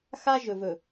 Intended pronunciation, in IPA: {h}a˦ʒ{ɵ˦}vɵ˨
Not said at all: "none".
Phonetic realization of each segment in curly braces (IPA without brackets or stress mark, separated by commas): x, ɵ˨